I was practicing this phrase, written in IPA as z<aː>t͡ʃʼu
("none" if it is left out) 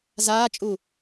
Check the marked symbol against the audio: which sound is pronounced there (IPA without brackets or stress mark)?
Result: aː